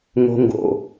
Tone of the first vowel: high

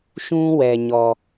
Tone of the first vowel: high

